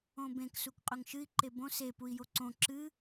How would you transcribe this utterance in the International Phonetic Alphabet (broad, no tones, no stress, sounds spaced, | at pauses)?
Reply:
õ b ẽ k s u k qʼ ɵ ŋ ʃ ɨ i̯ ǃ e b õ s e p u i̯ j o ǀ õ ǁ ɨ